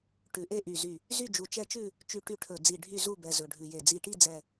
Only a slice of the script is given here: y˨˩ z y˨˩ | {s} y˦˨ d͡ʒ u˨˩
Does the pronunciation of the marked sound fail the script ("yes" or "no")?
yes